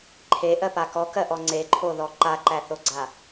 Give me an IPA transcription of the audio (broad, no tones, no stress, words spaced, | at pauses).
ǃʰeʔɜpa kɔkɜʔɔ ŋ͡ǀeǃʰoðɔ ǃaǃæθoɡ͡ǀa